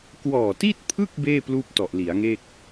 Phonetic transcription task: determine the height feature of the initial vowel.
mid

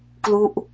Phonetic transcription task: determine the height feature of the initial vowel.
high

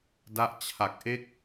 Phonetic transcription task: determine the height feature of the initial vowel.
low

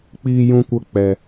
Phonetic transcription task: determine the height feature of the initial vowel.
high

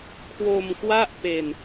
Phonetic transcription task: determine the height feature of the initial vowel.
mid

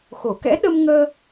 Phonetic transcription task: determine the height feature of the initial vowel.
mid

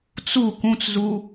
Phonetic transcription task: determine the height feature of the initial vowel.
high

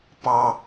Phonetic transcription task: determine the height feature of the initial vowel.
low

